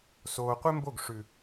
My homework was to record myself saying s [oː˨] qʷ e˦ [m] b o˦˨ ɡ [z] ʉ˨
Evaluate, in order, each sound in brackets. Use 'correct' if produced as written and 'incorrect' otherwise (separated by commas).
correct, correct, incorrect